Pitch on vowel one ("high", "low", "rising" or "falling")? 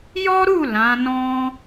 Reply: high